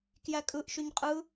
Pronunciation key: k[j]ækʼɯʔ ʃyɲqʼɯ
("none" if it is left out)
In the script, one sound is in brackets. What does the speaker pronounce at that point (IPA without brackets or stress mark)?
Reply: j